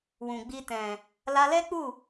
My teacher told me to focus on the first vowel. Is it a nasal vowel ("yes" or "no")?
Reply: yes